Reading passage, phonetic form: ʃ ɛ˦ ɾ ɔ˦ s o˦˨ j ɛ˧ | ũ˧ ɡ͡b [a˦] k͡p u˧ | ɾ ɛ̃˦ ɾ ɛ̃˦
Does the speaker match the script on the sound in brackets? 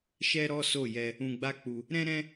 yes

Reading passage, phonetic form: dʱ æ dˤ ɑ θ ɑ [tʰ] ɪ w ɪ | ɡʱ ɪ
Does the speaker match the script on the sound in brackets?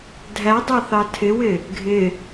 yes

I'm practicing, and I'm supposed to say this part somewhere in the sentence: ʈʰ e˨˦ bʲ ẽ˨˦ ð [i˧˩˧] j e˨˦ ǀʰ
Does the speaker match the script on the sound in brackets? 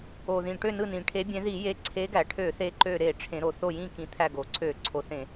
yes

